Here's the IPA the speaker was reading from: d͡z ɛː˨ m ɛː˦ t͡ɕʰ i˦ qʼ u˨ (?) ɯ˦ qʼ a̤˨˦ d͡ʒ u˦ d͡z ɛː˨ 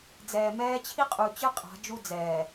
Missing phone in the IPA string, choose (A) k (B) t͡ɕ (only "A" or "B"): B